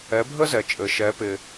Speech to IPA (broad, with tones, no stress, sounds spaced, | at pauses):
ɛ˩˥ bʱ ə˥ z ɛ˩ t͡ʃʼ ɘ˩ ʃ ɛ˩˥ p ɪ˩